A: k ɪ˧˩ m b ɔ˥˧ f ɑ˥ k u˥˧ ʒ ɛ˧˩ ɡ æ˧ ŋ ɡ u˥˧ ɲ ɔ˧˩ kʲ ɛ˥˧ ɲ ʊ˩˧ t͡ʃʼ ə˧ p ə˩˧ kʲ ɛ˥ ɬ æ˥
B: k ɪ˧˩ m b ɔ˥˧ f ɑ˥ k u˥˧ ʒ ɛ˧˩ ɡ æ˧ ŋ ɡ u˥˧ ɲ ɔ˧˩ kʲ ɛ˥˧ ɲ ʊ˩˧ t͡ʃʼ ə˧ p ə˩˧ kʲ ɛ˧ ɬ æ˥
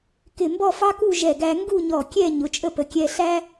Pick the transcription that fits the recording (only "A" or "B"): B